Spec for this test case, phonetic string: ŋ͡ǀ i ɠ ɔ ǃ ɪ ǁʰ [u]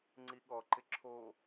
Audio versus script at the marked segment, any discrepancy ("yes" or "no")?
yes